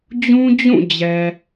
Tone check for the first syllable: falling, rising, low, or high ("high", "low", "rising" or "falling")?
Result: high